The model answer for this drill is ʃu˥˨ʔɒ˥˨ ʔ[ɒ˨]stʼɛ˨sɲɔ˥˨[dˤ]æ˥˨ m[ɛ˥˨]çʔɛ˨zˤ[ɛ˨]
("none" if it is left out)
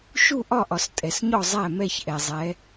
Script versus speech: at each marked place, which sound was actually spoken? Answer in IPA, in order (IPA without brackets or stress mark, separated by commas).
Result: ɒ˨, zˤ, ɛ˥˨, ɛ˨˦